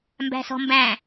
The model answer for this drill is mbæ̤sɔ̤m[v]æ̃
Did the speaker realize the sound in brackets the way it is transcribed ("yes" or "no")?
no